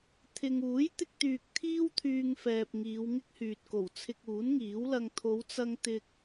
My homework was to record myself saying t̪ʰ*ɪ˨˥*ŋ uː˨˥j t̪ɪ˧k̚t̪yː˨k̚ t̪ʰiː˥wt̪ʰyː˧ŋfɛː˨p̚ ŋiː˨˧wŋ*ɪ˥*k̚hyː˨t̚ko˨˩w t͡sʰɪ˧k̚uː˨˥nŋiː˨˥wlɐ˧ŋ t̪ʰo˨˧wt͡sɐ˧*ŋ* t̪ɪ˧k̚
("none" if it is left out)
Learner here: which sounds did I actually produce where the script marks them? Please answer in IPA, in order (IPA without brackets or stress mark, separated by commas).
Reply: ɪ˧, ɪ˥, ŋ